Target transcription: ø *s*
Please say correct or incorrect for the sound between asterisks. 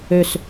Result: correct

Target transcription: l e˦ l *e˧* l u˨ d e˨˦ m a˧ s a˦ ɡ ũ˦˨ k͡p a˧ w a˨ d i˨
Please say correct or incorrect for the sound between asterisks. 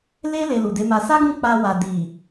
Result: correct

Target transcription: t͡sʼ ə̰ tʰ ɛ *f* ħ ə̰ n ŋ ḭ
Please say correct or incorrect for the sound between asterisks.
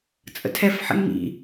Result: correct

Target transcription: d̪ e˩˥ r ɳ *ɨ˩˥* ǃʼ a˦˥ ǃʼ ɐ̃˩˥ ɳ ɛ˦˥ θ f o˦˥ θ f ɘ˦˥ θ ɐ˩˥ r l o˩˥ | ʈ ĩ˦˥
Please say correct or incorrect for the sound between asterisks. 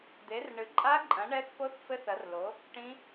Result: correct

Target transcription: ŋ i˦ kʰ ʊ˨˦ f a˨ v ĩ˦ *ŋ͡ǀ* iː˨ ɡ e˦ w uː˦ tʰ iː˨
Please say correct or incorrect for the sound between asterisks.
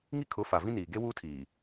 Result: incorrect: n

